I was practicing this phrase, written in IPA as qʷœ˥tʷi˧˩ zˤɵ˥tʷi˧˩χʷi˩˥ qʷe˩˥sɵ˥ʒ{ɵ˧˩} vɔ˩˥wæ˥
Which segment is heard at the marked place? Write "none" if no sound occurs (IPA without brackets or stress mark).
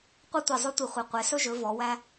ɵ˩˥